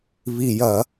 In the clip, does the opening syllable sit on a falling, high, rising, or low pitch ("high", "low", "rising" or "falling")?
low